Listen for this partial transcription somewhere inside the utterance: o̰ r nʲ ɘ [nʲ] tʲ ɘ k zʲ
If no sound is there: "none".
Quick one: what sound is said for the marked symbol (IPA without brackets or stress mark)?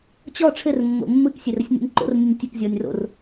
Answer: nʲ